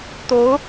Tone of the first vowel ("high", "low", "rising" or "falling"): rising